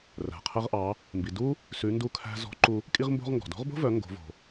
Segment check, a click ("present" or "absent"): present